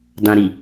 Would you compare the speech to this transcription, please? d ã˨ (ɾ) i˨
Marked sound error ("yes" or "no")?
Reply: no